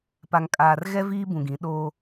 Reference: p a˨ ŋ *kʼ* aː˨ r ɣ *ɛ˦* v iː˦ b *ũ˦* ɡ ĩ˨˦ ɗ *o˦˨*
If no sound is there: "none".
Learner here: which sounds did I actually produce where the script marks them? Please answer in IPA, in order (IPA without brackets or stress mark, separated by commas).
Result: kʼ, ɛ˦, ũ˨, o˦